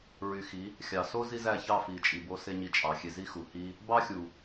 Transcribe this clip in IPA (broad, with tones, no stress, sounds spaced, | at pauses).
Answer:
ɹ y˨ x i˨˦ | xʲ ɑ˨ s o˦ z i˦ z æ˦˨ ç ɑ˦˨ f i˨ t͡ʃʼ i˨ b o˧ s e˦ ɲ i˧ t͡ʃʼ ɑ˨ xʲ e˧ z i˦ x u˨ h i˦ | b ɑ˦ xʲ u˨